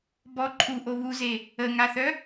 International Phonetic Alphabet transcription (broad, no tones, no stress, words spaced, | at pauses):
bɔ ǃʰuʔo βuze | əŋaθœ